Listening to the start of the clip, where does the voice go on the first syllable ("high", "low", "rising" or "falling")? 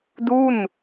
falling